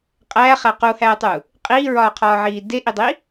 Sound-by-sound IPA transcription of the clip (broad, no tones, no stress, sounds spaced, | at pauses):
qʼ æː χ æ q u h æː tˤ u | qʼ iː ɹ ɒː qʰ ɒː ʕ iː d e ʔ i dˤ i